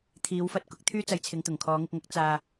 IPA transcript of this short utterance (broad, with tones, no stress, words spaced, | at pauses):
t̪ʰiː˨˧wfɐ˧t̚ kʊ˨˥k̚t̪ʰyː˥t͡sɐ˧jt͡sʰɪ˨˧ŋ t̪ʊ˨˩ŋkʰɔː˨˧ŋɪ˧k̚ŋɐ˨˥k̚ t͡saː˧